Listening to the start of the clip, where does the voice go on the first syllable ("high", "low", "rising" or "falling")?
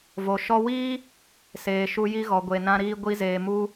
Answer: low